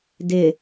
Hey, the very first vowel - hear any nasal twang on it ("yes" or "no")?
no